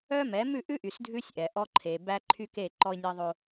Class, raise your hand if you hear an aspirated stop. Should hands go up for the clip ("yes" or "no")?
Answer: yes